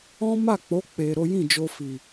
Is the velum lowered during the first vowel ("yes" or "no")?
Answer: yes